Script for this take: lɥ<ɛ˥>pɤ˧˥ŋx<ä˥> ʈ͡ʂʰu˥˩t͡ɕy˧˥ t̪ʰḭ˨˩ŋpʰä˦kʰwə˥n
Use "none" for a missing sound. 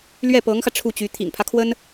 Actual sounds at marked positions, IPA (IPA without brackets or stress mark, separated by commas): ɛ˥˩, ä˧